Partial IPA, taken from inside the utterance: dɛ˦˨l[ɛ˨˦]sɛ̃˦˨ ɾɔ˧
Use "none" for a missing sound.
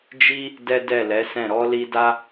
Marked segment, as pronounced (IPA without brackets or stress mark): ɛ˨˦